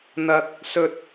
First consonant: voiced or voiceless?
voiced